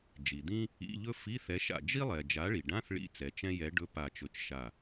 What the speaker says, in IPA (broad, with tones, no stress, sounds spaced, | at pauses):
d͡ʒ i˩ d̪ ĩ˥ | ḭ˧˥˧ ʎ ɵ˥ f i˧˥˧ θ ɛ˨˥ ʃ a̰˧˩ d͡ʒ i˥ lˠ ɛ˩ d͡ʒ a˨˥ ɭ i˩ ɖ ã˧˥˧ θ ɭ ḭ˥ t͡s ɛ˩ t͡ʃ ɛ̃˥ j ɛ˨˥ ɖ ɵ˧˥˧ p a˧˩ t͡ʃ ɵ˧˩ t͡ʃ ʃ a˧˩